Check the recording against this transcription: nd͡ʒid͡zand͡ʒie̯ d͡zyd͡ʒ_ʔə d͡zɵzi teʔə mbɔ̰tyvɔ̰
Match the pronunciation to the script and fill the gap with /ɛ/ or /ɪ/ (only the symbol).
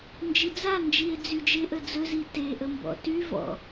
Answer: ɪ